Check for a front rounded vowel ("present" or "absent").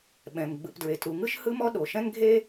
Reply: absent